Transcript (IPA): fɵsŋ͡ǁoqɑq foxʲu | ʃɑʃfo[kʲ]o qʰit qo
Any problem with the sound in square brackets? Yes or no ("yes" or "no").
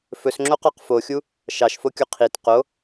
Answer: no